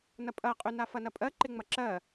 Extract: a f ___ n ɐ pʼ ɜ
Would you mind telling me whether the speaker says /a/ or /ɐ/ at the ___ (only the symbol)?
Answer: ɐ